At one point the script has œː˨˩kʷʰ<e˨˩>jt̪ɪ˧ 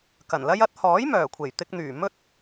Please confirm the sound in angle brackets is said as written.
yes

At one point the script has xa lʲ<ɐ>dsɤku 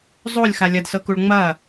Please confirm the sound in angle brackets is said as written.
yes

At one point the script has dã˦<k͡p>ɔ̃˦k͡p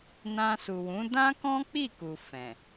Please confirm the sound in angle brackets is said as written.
no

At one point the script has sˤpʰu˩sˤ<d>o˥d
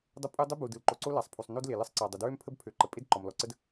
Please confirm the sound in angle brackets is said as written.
no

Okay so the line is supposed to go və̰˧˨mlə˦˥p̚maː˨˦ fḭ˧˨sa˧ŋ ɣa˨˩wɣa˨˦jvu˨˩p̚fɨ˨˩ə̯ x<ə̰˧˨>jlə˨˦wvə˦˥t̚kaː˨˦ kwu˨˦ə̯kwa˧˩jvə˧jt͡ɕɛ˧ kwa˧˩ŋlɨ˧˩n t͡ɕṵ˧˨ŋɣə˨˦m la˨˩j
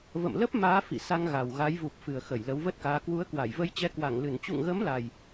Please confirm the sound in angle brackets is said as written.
no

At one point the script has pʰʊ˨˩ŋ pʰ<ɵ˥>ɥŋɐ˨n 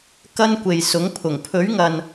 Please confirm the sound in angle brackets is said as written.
no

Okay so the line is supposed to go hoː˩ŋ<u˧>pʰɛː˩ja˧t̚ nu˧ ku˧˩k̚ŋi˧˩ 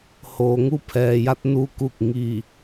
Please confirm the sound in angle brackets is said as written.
yes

